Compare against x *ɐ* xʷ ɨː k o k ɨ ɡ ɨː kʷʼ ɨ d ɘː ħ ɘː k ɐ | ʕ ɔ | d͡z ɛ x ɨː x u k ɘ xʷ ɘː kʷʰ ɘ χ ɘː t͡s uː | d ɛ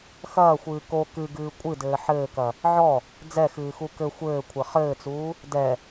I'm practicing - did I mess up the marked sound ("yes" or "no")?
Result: yes